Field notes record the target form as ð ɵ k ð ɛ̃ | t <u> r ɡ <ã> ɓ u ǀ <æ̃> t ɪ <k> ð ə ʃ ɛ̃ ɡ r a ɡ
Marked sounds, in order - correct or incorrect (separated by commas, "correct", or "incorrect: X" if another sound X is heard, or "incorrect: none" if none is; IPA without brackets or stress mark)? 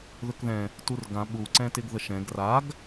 correct, correct, incorrect: ɛ̃, incorrect: ɡ